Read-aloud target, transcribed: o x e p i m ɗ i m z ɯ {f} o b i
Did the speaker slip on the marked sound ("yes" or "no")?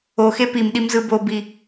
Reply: yes